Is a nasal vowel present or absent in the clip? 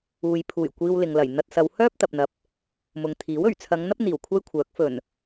absent